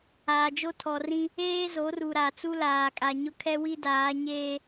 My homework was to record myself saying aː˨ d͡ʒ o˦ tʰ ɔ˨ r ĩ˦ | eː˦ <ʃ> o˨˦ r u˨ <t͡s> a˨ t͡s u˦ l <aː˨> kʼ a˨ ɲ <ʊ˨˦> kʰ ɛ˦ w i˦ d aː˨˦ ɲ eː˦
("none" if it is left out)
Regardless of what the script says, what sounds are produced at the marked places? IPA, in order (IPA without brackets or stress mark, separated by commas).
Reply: z, ɾ, aː˨, ʊ˦